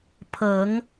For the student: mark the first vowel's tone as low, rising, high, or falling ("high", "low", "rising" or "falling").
rising